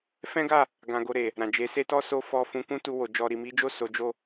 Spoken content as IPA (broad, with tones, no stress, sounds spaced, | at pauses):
f ɛ̃˦ ɡ a˦˨ | ɡ ã˧ ɡ o˧ ɾ e˨ | ɾ ã˨ d͡ʒ e˨˦ s e˦ t ɔ˦ s o˦ f ɔ˧ f ũ˧ k ũ˦ t u˧ w o˨ d͡ʒ ɔ˨ ɾ i˨ m i˨˦ d͡ʒ o˦˨ s o˨˦ d͡ʒ o˦˨